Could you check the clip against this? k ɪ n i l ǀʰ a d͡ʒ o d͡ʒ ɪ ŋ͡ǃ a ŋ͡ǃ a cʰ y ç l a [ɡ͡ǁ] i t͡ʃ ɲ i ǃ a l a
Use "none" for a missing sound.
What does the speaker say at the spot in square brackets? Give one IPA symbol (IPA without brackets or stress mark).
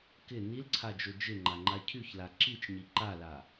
ǁ